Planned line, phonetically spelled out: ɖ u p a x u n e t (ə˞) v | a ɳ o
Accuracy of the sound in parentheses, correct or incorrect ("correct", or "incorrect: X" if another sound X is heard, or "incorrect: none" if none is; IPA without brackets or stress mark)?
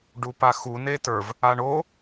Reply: correct